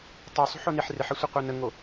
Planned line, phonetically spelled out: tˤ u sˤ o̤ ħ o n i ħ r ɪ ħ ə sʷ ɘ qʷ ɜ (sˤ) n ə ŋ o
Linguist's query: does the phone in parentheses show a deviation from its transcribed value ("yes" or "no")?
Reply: yes